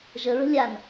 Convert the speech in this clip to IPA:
ʒə ɹə̤lʲan

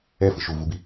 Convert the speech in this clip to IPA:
ɛfɯ ʃuvubi

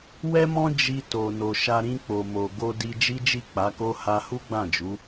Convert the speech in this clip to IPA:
wɛ˦mɔ̃˦ d͡ʒi˧ to˨no˨ʃa˧ ɾĩ˧k͡po˨mo˨ ɡo˧ di˧d͡ʒi˦d͡ʒi˦˨ k͡pa˨˦ko˦ ha˧hu˦ɡ͡bã˦˨d͡ʒu˨˦

